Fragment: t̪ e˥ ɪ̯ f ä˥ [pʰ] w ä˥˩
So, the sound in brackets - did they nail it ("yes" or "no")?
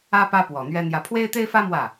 no